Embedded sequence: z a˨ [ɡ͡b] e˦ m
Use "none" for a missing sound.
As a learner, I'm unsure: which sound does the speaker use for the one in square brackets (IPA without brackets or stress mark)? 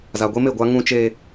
ɡʷ